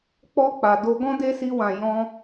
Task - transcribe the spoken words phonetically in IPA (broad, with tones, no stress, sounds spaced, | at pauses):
k͡p ɔ˧ k͡p a˨ d o˧ ɡ ɔ̃˦ d e˦ s i˧ w ã˨ j ɔ̃˧